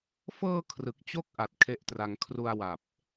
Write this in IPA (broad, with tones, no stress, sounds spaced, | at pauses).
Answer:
f ɤː˧ kʰ r ɯ˨˩ k̚ t͡ɕ o˥˩ k̚ ʔ a˨˩ t̚ kʰ e˦˥ ʔ t r a˧ ŋ kʰ r u˧ a̯ w a˨˩ p̚